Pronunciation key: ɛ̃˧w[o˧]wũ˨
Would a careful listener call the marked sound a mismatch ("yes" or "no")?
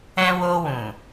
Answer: no